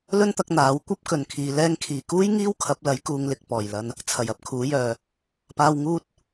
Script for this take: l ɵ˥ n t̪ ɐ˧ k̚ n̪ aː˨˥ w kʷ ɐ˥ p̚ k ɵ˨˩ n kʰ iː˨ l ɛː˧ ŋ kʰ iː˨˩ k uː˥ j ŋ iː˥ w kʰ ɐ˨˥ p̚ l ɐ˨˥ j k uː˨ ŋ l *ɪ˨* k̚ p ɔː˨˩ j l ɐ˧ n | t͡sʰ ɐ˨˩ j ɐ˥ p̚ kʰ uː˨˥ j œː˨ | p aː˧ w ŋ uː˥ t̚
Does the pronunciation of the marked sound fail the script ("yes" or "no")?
no